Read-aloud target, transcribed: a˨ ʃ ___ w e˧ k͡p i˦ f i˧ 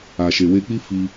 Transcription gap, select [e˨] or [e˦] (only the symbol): e˨